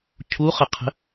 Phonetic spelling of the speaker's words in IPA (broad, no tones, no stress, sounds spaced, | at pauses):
cʰ u χ ə qʰ ə̤